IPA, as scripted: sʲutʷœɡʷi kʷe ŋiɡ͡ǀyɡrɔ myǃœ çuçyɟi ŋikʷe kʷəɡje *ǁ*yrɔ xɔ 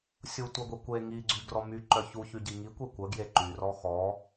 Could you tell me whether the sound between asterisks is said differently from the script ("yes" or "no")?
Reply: yes